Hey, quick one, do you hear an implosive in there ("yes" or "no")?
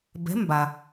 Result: no